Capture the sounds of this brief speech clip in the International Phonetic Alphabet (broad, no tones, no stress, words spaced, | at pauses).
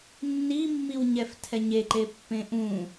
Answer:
nːimːiwɲɛftʰɛ ɲeǃepːẽ ʔũ